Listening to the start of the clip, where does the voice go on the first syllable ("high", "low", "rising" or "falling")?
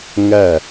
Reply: falling